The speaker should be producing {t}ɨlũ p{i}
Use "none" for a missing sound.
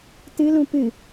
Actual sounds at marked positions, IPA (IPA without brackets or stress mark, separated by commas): t, ɨ